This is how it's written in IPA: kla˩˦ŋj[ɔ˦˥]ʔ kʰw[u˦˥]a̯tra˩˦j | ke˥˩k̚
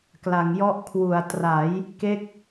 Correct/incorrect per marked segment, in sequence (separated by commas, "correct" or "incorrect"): correct, incorrect